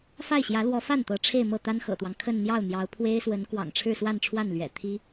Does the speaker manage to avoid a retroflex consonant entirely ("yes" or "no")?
no